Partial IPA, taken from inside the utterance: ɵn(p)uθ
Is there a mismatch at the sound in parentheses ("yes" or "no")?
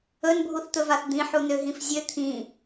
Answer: yes